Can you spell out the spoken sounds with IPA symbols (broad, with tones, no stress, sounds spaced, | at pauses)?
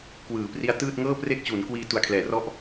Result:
k w ɯː˩˦ p r i˦˥ a̯ t ɯː˥˩ t̚ ŋ ɤː˥˩ p r e˥˩ k̚ t͡ɕ u˩˦ n k w iː˧ t u˨˩ a̯ kʰ l ɛː˩˦ r ɔ˦˥ ʔ